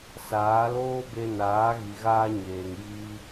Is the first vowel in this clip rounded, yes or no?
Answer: no